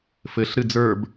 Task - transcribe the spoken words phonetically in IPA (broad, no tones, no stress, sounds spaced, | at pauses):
f ɘ ɬ ɾ ɨ d͡z ə˞ b